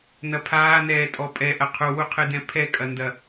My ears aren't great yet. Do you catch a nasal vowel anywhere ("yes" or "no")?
yes